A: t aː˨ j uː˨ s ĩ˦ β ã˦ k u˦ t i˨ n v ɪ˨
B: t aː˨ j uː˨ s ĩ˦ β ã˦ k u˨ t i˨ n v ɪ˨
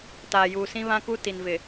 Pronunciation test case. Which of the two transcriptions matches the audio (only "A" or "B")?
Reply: A